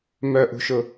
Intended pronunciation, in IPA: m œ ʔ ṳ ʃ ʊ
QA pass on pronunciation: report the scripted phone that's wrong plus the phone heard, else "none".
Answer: none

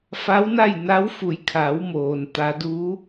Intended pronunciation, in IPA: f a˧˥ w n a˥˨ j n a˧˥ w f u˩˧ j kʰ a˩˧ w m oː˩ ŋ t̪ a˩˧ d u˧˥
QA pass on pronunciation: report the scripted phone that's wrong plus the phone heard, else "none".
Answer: ŋ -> n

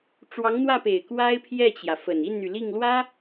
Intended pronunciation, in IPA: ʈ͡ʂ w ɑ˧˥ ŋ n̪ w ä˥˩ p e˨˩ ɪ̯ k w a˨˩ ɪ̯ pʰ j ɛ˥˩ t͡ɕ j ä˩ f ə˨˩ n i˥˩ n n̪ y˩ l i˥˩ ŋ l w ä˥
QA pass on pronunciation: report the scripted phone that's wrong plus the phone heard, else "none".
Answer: a˨˩ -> a˥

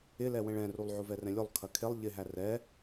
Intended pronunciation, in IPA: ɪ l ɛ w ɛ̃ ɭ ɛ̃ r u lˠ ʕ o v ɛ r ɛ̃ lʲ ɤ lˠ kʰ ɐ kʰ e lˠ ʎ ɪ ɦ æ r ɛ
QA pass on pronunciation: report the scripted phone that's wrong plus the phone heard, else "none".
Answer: ɤ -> o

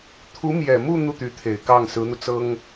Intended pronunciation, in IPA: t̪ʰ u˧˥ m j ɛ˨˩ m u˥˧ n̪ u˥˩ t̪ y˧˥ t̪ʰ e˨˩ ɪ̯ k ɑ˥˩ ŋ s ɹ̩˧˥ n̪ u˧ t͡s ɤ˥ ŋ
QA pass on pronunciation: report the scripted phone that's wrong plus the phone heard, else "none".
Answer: none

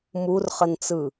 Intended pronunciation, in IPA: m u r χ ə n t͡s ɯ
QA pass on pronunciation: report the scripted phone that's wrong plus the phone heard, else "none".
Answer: none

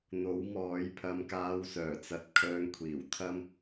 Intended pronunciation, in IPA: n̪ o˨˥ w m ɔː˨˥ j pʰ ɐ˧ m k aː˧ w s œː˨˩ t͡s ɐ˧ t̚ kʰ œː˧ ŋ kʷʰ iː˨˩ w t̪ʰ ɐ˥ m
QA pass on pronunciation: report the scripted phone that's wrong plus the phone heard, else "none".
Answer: none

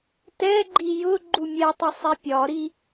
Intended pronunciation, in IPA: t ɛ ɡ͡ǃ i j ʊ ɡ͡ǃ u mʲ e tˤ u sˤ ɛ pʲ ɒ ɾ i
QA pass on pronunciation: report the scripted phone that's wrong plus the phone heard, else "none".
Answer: e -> ɛ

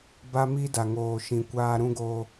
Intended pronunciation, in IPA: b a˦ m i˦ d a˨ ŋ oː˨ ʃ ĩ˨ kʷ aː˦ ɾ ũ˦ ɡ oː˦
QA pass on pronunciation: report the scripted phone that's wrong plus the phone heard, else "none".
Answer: none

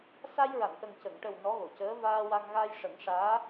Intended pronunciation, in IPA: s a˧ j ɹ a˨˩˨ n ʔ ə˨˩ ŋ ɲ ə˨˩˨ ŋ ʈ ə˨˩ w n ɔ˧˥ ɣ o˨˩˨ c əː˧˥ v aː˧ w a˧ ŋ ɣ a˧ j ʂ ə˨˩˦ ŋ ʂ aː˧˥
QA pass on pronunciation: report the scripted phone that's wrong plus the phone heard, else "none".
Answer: ɲ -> c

